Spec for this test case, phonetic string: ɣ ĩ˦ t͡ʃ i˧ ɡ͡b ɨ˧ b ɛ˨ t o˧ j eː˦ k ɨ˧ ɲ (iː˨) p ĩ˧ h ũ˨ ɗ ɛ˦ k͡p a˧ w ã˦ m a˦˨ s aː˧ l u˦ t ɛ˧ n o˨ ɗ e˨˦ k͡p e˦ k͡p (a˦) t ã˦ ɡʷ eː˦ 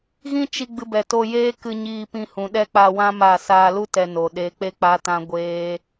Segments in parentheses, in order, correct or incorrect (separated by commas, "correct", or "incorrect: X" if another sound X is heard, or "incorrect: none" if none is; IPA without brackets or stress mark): incorrect: iː˧, correct